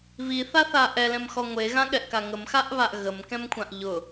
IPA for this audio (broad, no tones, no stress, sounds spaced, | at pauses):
β i θ a θ a ʔ ɛ l ɛ̃ m x ɔ ŋʷ e ɣ ã ɠ ɛ ʔ k a ŋ ə m x a ʔ β a ʔ ɣ ə m k ɛ̃ m kʷʰ ã ʔ ʎ ʊ